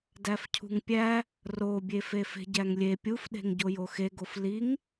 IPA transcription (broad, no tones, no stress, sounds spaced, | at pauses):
d æ f cʰ ṳ ŋ pʲ æ | r o bʲ e f e f e̤ ɟ æ ŋ lʲ e pʲ u f ɗ e̤ ŋ ɟ o j o x e ɡ o f l i ŋ